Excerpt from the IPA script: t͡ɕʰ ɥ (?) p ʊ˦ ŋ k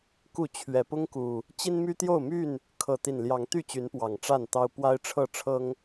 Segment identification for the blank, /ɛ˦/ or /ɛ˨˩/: ɛ˨˩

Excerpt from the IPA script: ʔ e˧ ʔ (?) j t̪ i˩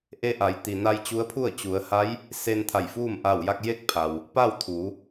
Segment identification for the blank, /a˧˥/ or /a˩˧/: a˩˧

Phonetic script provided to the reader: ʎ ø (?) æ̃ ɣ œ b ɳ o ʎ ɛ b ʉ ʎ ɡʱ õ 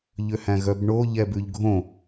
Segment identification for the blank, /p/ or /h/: h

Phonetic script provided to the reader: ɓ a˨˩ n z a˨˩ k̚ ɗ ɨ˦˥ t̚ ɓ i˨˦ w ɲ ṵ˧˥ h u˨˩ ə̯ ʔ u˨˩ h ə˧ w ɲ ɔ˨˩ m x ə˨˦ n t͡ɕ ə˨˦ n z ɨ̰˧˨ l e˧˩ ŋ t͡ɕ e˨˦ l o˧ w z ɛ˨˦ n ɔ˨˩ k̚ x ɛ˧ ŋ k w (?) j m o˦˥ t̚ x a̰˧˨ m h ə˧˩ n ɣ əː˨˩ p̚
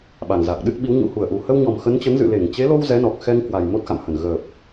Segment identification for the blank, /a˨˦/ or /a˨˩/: a˨˩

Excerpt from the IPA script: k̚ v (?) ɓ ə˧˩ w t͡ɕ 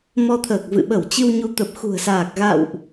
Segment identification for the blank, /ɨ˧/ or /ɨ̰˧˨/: ɨ̰˧˨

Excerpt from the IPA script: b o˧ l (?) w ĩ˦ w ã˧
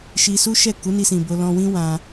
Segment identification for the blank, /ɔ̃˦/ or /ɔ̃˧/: ɔ̃˧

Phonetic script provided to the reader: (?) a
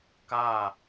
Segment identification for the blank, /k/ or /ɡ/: k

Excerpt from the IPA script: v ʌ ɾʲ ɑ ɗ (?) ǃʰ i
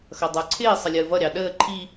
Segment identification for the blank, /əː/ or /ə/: əː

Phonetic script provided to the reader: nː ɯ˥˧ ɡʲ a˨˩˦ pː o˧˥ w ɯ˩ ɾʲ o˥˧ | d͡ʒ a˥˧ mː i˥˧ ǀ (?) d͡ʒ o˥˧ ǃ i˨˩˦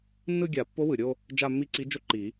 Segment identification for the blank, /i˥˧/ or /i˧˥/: i˧˥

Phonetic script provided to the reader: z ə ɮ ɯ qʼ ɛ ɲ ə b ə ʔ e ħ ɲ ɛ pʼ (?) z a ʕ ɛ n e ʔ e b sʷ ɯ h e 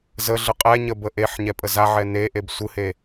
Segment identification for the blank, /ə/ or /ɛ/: ə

